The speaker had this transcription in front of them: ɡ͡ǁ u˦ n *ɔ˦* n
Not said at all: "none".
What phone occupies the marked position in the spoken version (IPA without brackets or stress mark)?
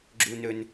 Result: ɵ˦